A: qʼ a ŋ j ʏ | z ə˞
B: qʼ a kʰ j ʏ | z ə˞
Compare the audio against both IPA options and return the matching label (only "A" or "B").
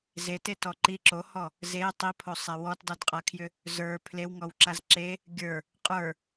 B